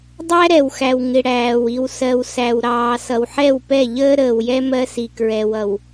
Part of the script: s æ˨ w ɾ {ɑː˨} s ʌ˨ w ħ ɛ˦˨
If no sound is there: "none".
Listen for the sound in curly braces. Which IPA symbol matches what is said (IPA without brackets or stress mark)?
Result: ɑː˨